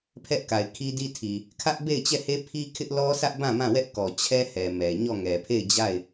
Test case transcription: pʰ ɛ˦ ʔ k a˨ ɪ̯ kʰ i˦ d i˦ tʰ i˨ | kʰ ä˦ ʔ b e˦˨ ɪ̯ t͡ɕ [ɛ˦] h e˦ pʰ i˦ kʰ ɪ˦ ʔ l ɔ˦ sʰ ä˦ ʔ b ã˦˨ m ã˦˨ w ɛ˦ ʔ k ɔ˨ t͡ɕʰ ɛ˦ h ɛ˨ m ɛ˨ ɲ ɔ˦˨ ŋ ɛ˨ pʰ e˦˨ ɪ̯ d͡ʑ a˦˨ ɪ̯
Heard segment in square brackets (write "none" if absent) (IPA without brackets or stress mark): ɛ˦˨